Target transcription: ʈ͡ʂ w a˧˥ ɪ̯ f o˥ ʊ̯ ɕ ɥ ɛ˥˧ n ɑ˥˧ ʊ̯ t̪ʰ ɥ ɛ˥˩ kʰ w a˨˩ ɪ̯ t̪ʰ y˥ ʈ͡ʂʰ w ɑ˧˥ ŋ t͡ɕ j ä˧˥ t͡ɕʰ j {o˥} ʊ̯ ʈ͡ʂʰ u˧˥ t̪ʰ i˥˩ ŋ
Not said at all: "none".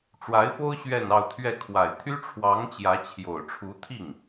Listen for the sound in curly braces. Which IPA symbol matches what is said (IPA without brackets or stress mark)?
o˨˩